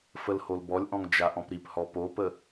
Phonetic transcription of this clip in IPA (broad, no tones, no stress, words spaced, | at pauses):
fəlholbɔlʲʔɔ̃ŋ d͡ʒaʔɔ̃pɾiphɔ popə